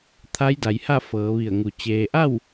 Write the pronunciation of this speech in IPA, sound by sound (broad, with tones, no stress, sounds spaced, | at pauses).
t̪ʰ a˧˥ j d a˩ j h a˥˨ f ɤː˩˧ ʋ i˧˩ ə̯ ŋ u˩ t͡ɕ eː˩ ʔ a˥˨ w